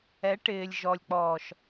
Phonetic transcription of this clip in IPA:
ɛ˨˦ʈɪː˨lʲʒɔ˨lʲk͡pɔː˨ʃ

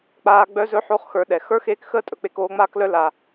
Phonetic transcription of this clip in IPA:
k͡paː˦ɡ͡bœ˥zɵ˥ ħo˦χxə˞˨ɗɛ˩ xə˞˥xeː˦k xəː˥tʼɵ˩k͡pe˨k oː˦ŋ͡maː˥klœ˦ la˩

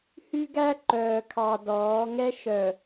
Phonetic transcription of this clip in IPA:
hy˦ɡæ˦ ǃœː˨kʰɑ˨ dɔː˨˦ ŋɛ˦ ʃœ˨

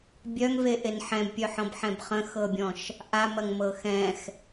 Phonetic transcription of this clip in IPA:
bʲœŋveʔen ħɛ̃bpʲœħɔ̃bħɛ̃b χə̃xɤbʲɔ̃ʃ | ʔamɐŋmɤ xɛ̃x

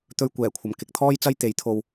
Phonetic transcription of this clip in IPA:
t̪ɵ˧ɥ kʷɛː˨˩kʷʰɐ˨˩m kɪ˨˥k̚ t̪ʰɔː˥jt͡sɐ˥j t̪e˨˥jt̪ʰo˧w

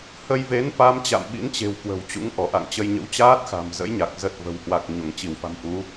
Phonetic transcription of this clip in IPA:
hə˧jve˨˦nfa˨˦m t͡ɕa̰˧˨mɓḭ˧˥nt͡ɕe̤˨˩w kwə̤˨˩wt͡ɕṵ˧˥ŋ ʔɔ˧˩ʔa̰˧˨ŋ t͡ɕə˧jɲə̰˧˥w t͡ɕaː˦˥t̚xa̤˨˩mzə̰˧˥jɲa˨˩k̚ zə˨˩t̚ və̤˨˩whwa˨˩k̚ ɲo˧˩ŋt͡ɕi˧˩wfa̤˨˩m ʔu˨˦

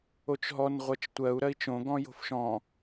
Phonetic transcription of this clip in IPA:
ot͡ʃɦɔn ʁʷɜt͡ʃtʷɜu̯ ɾɜi̯t͡ʃõ ɡɔ̃jo̤fʃɔ̃

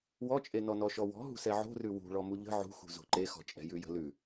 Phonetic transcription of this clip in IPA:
wɔt͡ʃʼenɔ nɔʃɔwɔ̤ ɦṳsɛʕo̤rʉ wṳɭɔmu ʎə̤ ʕṳxṳ zo̤ǃexɔ̤t͡ʃʼɛ̤ jʉjə̤lʉ

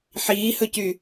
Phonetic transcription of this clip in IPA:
ħiːhɵcy

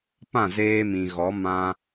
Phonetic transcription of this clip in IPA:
pã˦˨zeː˧mĩ˨ɣɔ˨˦ mã˧

